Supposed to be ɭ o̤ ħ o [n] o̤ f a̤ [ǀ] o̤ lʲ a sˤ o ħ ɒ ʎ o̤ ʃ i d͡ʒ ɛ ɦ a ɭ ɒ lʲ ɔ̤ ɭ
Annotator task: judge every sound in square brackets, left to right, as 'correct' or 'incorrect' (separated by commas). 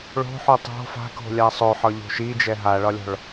incorrect, incorrect